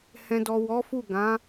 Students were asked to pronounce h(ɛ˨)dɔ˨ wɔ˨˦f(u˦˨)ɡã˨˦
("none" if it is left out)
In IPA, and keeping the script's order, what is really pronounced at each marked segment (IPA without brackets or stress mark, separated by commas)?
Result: ɛ̃˨, u˦˨